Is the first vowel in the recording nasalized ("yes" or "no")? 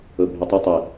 no